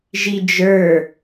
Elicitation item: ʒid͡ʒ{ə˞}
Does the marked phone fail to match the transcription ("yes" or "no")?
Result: no